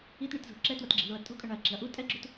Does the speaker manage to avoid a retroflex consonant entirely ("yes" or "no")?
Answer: no